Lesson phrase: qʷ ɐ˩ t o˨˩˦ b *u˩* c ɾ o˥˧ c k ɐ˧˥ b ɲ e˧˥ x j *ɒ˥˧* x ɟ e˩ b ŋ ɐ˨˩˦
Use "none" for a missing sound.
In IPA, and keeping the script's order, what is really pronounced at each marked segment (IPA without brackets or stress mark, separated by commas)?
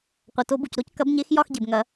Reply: u˩, ɒ˥˧